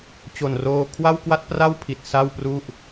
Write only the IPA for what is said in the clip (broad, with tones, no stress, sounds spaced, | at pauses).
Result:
t͡ɕ o˨˩ n r oː˧ kʰ w a˥˩ w k w a˥˩ t̚ p r a˥˩ w pʰ i˨˩ t̚ s a˥˩ w p r u˥˩ ʔ